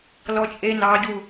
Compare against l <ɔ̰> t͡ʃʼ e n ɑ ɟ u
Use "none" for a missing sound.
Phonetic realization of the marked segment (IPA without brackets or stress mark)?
ɔ